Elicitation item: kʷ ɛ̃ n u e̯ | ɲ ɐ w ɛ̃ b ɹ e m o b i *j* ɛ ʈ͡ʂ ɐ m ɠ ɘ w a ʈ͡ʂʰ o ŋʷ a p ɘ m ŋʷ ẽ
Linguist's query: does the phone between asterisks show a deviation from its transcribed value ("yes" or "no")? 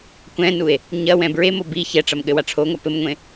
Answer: yes